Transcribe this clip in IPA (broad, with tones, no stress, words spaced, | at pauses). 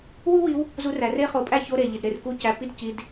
wu˥wi˧˥w | zu˧˥ræ˩˧re˥ χo˧˩pʼæ˥ço˧˥˧ ɾe˧˩ʎi˩d ɾe˧˩rku˧˥˧cæ˧˩pːi˥d ci˧˥˧d